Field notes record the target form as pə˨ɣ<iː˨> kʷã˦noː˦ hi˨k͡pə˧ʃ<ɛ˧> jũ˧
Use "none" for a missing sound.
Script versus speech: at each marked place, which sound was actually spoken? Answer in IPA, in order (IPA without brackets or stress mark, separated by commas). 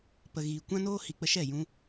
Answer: iː˨, ɛ˦˨